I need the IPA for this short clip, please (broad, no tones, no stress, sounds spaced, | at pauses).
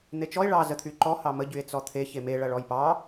n̪ e t͡ʃ ɔ e̯ ɭ ɑ z ə t̪ʰ y ǃ ɔ h ɑ m ə ɟ y e̯ t͡s ɔ t̪ʰ e ç e m e ɭ ɐ ɭ ɔ j p ɑ